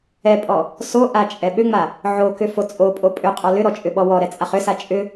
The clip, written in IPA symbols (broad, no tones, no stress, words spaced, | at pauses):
ɛpʼɔ | soʔa t͡ʃʼɛɓʏŋ͡ma | ʕokʏ fot͡sʼopʼo pʼʏqʼɔ lʏɾɔ t͡ʃʼʏɓɔwɔɾɛ t͡sʼaχʏsa t͡ʃʼʏ